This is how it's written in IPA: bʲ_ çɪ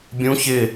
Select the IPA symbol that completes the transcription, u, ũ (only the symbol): ũ